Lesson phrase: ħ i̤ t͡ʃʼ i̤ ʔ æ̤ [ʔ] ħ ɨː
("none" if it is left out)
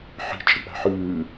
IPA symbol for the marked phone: none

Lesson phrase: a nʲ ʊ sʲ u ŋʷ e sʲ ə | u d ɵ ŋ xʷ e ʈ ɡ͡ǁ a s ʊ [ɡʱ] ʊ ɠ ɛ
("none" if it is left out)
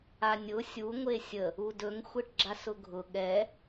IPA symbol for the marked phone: ɡʱ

